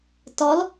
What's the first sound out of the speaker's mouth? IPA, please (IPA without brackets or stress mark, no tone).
t